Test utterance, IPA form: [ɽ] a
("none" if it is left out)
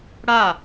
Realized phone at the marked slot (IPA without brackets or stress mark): ɽ